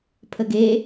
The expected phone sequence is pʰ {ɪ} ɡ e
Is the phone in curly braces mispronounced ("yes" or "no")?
yes